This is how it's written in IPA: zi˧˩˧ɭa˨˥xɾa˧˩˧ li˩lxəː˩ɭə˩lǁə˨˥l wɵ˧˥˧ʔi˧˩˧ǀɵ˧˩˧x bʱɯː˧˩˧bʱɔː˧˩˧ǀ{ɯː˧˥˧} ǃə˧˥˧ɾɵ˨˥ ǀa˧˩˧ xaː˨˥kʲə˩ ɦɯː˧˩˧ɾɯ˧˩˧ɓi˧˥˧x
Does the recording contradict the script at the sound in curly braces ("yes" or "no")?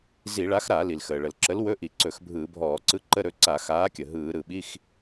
yes